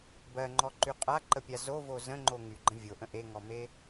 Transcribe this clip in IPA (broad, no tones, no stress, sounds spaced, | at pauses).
b ɜ ŋ͡ǃ ɔ ǃ y qʼ a ǃ ə pʲ a z o v o z ə̃ ŋ͡ǃ o ŋ y ɡ͡ǃ ə̃ vʲ o ʔ ə̃ ʔ e ŋ ɔ m e